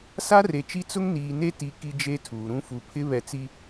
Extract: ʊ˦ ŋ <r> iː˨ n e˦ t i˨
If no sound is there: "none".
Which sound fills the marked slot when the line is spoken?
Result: n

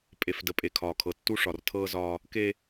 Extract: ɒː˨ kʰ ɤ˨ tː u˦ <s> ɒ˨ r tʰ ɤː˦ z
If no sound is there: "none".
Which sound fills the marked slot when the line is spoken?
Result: ʂ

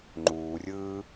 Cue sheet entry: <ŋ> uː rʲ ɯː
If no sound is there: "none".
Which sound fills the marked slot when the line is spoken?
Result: ŋ͡ǃ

